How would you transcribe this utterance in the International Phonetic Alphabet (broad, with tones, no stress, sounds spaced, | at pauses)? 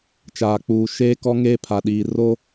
t͡ʃ aː˨ k͡p uː˨ ʃ eː˦ k ɔ˦ ŋ eː˦ pʰ a˨ ɗ iː˨ r o˦